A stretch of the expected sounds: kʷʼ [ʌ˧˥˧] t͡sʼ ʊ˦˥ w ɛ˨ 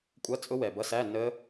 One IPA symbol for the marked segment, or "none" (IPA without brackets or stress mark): ʌ˧˥˧